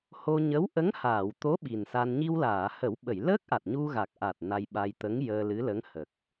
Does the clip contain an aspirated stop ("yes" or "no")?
no